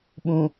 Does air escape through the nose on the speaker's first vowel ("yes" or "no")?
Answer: yes